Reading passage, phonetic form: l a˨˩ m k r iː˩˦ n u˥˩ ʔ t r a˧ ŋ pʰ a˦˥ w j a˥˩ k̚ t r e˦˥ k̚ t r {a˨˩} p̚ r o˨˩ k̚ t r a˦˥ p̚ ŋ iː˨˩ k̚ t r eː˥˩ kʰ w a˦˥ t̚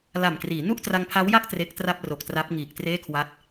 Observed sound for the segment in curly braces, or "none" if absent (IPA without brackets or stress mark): a˥˩